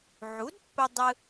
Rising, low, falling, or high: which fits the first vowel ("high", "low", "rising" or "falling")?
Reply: rising